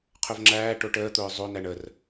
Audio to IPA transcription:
qʰɵvŋ͡ǁæːʈo ʈəːt̪ʊː zˤonæɳ ər

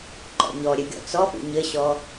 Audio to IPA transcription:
ǃɔ̰ɲɔɾʲɘ ɡʲɔ̰t͡sɔpṵ ɲɘɕɔ

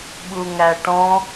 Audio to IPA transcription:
ɓuŋæʈɔ̃

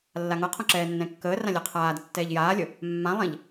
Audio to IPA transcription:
lːaŋɤqʰõ ǁɛːnːɛ̃kːəːrã lʲɛqʰaːdə tːɛːʎjaːlʲə | mːãlˠɛ̃ʎ

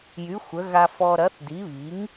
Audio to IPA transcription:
jy˩˥ xʷə˩˥ ɣa˧fɔ˧ ɾɐ˩˥θdi˩˥βi˩˥ŋ

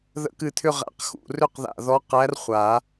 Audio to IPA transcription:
ðə̰˧˥kɨ˧˩t̪ʰʏ˥˧ʁæ̰˧˩q xṵ˧˩rʏ˥˧qða̰˧˩ ðɔ˧˥qæ˧˥rχʷa˨˩˦

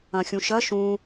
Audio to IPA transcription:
ɐ̃xʲũʃɐ ʃũ

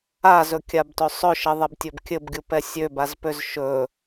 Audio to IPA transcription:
azɵkʲabtɵ sˤɵʃɘðˤɛbtʲɵb kʲɘbɡʲupɛ sʲøbazpøz ʃɵ

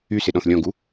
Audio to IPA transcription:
ysɪɗɔ̃θ lʲɔ̃ɡu

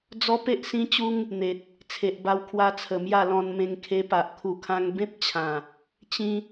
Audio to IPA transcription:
d͡zɔ˦pe˦ʔsĩ˦t͡ɕu˦ŋ | n̪e˨t̚ | t͡sʰe˨ʔba˧wkʰwa˧t͡sʰə˨˩ mja˥˧lɔ̃˧n mẽ˧ŋ kʰe˧pa˨ʔ kʰu˨˩kʰã˧ŋ bẽ˦p̚t͡ɕʰã˨˩ | t͡ɕĩ˦

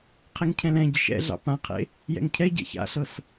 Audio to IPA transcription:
qʰeŋcʰɛ̃lɛ̃ ɟɪʃɛ̰ɮɑ̰ pãqʰḛ | jɛ̰ŋcʰɛ ɟɛ̰ça̰ɬɤs

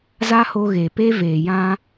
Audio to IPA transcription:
za˦ho˧ ɣe˨pe˦ veː˨jã˦

